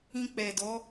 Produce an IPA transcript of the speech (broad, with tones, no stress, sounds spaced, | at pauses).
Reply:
ĩ˧ k͡p ɛ˨ d ɔ˨˦